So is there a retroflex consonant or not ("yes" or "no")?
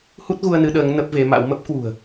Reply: no